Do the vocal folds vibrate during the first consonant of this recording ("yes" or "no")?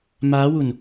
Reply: yes